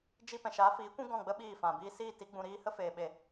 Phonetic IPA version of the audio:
d͡ʒi˦ pɛ̃˨ʃaː˨˦fiː˨˦kʷũ˦ ɡɔ̃˦˨ɡ͡bə˦ ɓiː˦˨fã˨biː˦ siː˦˨ ti˦ɡ͡bũ˧ɾiː˦ hə˦feː˨ɓe˨

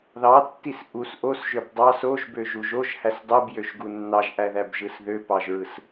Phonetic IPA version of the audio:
ðɑtːis ʔus ʔosʒøb dˤɑs oʒbøʒuʒ oʒhæs dˤɯbjøʒɡu nːɑʒʔæðæbʒɯs ðøpɑʒɹɯs

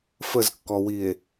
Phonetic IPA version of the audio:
fəzkːɔwie̯

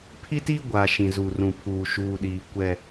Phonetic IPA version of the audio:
pʰi˦ti˦ ɡʷa˨ʃĩ˨ zu˨rũ˨pʰuː˨ ʃuː˨ɗiː˨ kʷɛ˦

